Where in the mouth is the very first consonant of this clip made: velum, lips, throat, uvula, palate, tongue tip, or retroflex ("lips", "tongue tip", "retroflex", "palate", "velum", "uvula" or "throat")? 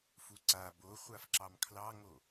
lips